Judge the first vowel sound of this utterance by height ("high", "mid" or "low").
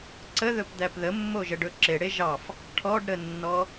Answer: mid